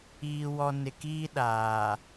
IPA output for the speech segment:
iː˨ w ɔ˨ n ɪ˨ k iː˦ ɗ aː˨

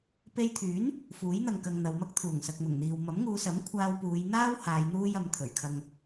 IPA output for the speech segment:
p e˧ j t̪ʰ yː˨˥ n | f uː˨˥ j n̪ ɐ˨ ŋ k ɐ˧ ŋ n̪ ɐ˨˧ w m ɐ˥ k̚ t̪ʰ uː˨˩ ŋ s ɐ˨ k̚ m ʊ˨˩ ŋ n̪ iː˨ w m ɐ˨˥ m ŋ uː˨˧ s ɐ˨˥ m kʷʰ aː˧ w p uː˨˧ j n̪ aː˥ w h aː˨˧ j n̪ uː˥ j ɐ˨˧ m t̪ʰ ɵ˨˩ ɥ kʰ ɐ˧ ŋ

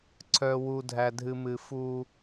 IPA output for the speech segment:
ǀʰ œ˨ w u˨ dʱ æ˨ dʱ ɨ˨ m ɨ˨ f u˦

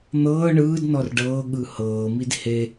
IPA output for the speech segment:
n̪ ɤː ɳ ɯː d n ɔ r ɖ ɤː ɠ ɯ h ɤː m i d h e

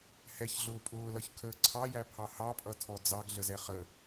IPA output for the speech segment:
h ɛ ç ɮ ʊː pʼ ʊː l ʌ ç kʰ əː ǀʰ ɑ j æ pʰ ɑ h ɑ pʼ ʌ tʰ ɔ d͡z ɑ ɡ ɮ ə z ɛ χ ə

